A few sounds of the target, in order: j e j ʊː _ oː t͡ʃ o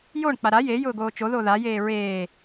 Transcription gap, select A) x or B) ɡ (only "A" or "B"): B